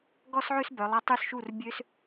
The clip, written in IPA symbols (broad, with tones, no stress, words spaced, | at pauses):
ɡɔ˥sʕø˥sbœ˩˧lˠa˧ tˤy˧˩sʃu˧˩r bʲø˧s